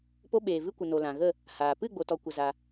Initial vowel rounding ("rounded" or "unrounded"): rounded